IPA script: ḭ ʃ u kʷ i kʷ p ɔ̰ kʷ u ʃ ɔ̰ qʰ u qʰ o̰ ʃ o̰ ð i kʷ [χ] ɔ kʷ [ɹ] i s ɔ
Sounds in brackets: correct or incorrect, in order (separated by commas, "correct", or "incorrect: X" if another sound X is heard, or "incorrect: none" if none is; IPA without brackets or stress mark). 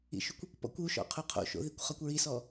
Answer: correct, correct